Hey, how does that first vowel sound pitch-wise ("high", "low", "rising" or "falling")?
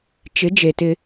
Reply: rising